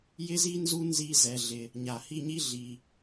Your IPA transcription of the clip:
jɪ˦zi˦nzu˦ nzi˦zɛ˧ɮɪ˧ | ɲa˨hi˦˨ɲi˦ ɮi˧

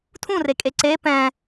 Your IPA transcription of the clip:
tʰũrekʼe ǀe pɛ̃

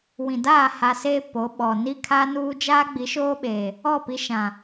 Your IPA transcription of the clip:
wĩ˨daː˦˨ ha˨seː˦ po˨˦ɓɔ˨ ni˦kʰa˦nuː˦ d͡ʒaː˦ɡ͡bi˨˦ʃoː˦ɓeː˨ | ɔ˦˨pi˦ ʃã˨

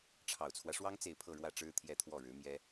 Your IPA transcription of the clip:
ʈ͡ʂʰɑ˨˩ʊ̯t͡sʰwä˦ʂwɑ˥ŋ t͡se˥˧ɪ̯pʰɤ˥˧ɻwä˥˩ʈ͡ʂɻ̩˥ t̪ʰjɛ˥˧t̪ʰwɔ˥˩ɻɻ̩˧˥mjɛ˥

